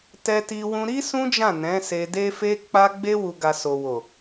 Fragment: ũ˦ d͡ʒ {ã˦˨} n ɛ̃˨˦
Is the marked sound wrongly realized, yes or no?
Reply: no